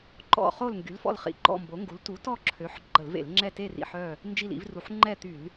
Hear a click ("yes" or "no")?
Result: yes